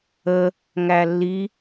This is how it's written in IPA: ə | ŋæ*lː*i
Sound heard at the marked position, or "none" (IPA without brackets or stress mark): lː